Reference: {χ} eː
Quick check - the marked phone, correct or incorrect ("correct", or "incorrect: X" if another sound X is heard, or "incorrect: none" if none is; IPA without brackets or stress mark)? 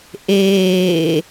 incorrect: ʔ